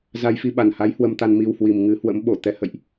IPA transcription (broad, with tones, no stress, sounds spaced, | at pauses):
z a˧ j f i˧ ɓ a˨˩ n h a˨˦ j h w ə˧ m t̪ a˧ n m i˧ w h w i˨˩ m ŋ ɨ˨˦ h w ə̰˧˥ m ɓ o˧˩ t̪ ɛ˨˦ h ə̰˧˨ j ʔ